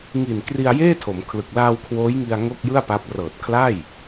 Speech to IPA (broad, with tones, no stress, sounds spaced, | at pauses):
ŋ i˨˩ n k r i˧ a̯ j eː˥˩ tʰ o˩˦ m kʰ l ɯ˨˩ k̚ l aː˧ w kʰ w oː˦˥ j ŋ i˧ a̯ ŋ o˥˩ k̚ j ɯ˥˩ a̯ p a˦˥ p̚ r ɤː˨˩ t̚ kʰ l a˥˩ j